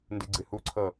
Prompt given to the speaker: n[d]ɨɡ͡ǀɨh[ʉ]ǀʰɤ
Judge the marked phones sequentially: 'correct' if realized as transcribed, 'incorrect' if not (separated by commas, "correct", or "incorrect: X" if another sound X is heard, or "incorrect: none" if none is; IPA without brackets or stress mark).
correct, incorrect: u